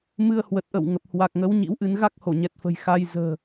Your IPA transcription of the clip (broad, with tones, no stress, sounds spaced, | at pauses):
m ɨ˧ ə̯ h w ə˨˩ t̚ ʔ ə̰˧˨ w ŋ ə˨˩ p̚ h w a˨˩ k̚ ŋ ə˨˦ w ɲ ḭ˧˥ w ʔ ɨ˧ n ɣ a˦˥ k̚ h o˧˩ ɲ ɛ˨˩ t̚ f ə̤˨˩ j x a˧ j z ə̤ː˨˩